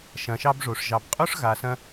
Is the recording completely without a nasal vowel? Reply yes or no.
no